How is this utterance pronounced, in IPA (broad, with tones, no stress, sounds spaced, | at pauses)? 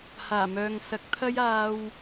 h aː˨˩ m œː˨ ŋ s ɐ˨˥ k̚ t̪ʰ ɐ˥ j aː˧ w